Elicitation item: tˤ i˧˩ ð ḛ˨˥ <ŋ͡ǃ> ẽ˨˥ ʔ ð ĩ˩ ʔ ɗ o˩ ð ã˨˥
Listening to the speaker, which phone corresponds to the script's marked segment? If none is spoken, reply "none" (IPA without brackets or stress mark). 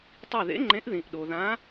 ŋ͡ǃ